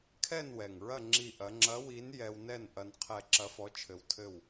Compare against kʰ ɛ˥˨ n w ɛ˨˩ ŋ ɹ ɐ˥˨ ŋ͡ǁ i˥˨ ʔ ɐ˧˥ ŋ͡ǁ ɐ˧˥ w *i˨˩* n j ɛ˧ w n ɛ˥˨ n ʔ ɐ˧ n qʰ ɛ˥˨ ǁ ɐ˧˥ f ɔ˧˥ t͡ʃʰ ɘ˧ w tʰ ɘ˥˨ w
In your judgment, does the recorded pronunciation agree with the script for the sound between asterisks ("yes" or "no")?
no